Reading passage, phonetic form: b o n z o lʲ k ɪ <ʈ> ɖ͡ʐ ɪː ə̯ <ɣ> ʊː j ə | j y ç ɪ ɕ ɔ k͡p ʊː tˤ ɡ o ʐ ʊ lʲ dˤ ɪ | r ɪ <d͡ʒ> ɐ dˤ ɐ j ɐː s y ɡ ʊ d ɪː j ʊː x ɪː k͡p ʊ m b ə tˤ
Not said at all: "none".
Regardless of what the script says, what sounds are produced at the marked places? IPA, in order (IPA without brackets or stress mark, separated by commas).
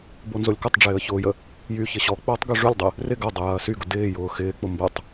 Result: tˤ, ç, ɡ